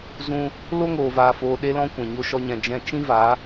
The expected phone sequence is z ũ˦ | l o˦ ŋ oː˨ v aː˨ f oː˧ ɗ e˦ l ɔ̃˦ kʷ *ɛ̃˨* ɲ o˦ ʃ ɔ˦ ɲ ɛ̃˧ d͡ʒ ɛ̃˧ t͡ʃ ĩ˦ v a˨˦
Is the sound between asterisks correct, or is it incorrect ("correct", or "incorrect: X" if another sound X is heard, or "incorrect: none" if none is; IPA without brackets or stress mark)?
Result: correct